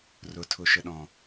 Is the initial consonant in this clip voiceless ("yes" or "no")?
no